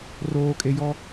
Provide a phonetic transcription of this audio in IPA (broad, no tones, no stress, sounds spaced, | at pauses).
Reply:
r oː kʼ e j ɔ